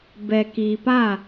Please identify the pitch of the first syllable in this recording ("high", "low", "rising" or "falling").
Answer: low